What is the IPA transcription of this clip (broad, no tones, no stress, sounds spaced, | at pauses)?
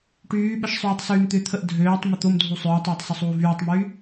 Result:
ʈ yː ɓ ə ʃ sˤ yː tˤ s yː m t̪ ʏ t̪ʰ ə ʔ dʱ øː tˤ m ʏ t̪ o m dʱ u sˤ ʏː tˤ oː tˤ s ʏ sˤ uː v yː tˤ m yː